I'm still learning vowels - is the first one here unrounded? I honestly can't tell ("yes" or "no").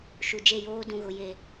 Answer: no